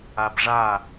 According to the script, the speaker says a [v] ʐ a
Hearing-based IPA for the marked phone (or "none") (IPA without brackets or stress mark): b